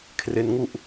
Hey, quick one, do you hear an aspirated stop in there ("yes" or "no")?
yes